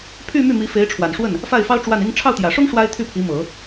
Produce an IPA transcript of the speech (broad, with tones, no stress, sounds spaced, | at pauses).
pʰ y˥˧ m y˥˩ m i˧˥ f e˧˥ ɪ̯ ʈ͡ʂʰ w a˨˩ n ʂ w ə˥˩ n | f a˥˩ ɪ̯ f ɑ˥ ʊ̯ ʈ͡ʂ w a˥˩ n i˥ ŋ ʈ͡ʂʰ ɑ˥˩ ʊ̯ t̪ j ä˨˩ ʂ ʊ˥ ŋ ʂ w a˥ ɪ̯ t̪ʰ y˥˩ pʰ i˧˥ m ɤ˨˩˦